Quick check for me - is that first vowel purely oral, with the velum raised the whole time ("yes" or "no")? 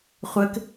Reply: yes